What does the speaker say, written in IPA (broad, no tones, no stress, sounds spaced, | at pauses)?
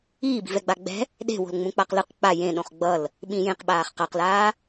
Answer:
iː b i̤ v ɛ ɡ͡b a ɡ͡b ɛ̤ | ɗ e̤ w o̤ l ŋ͡m ũ k͡p a q l ɯ q k͡p a j ẽ ɗ õ χ ɡ͡b ʌ l | ɓ ĩ j ẽ q ɓ aː χ q a q l aː